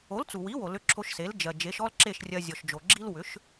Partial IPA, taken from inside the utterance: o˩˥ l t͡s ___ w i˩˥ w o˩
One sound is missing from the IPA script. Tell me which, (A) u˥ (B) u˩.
B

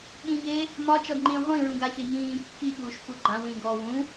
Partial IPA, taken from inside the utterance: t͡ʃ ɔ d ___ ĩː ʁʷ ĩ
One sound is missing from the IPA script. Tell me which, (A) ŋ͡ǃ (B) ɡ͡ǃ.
A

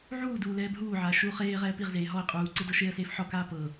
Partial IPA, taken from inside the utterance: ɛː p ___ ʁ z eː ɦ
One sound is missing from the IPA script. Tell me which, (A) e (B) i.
B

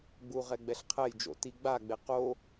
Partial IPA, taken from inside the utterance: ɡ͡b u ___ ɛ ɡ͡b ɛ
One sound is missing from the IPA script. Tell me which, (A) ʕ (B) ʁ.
B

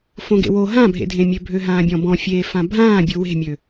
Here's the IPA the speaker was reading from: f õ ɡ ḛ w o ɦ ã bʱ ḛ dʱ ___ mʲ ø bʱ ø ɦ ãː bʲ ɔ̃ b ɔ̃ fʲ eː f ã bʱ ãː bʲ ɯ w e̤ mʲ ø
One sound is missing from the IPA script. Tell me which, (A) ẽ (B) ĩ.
A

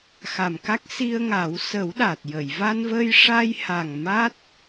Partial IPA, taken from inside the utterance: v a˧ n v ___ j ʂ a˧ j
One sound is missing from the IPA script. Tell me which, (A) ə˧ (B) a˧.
A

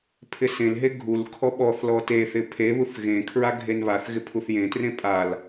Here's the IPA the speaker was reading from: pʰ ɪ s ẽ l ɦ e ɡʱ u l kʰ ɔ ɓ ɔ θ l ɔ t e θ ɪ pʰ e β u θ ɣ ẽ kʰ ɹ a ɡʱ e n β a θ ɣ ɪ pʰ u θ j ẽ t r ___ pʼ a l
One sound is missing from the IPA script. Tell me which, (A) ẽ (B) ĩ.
A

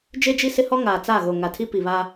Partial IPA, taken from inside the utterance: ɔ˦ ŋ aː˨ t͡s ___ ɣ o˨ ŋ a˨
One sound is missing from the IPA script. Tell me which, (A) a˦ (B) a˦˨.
B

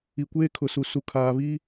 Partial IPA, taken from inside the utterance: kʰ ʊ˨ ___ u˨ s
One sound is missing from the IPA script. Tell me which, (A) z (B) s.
B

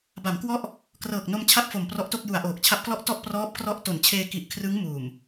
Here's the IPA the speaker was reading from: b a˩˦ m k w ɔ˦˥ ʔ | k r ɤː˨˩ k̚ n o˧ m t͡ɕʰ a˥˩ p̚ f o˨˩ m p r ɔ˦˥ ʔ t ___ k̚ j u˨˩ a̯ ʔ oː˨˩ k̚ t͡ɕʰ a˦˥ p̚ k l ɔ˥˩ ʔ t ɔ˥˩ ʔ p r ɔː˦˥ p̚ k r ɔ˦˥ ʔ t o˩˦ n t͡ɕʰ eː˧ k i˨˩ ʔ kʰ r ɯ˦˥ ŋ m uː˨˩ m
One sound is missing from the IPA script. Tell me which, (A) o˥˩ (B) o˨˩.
A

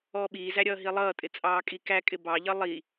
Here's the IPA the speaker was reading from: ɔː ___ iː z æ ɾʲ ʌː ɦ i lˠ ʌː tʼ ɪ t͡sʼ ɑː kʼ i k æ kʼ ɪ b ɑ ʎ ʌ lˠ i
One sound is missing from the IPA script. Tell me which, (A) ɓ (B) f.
A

